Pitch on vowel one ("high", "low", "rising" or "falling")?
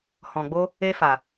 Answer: low